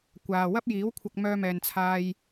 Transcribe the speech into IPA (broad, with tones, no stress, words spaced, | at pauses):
kʷaː˨ wɐ˥p̚jiː˨˥wkʷʰɐ˧k̚ mœː˧mɛː˨nt͡sʰaː˧j